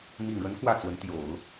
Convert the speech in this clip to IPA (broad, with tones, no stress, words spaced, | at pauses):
mi˨˩ŋɻə˧˥n xwä˥˩t͡swə˧˥n t̪jo˨˩˦ʊ̯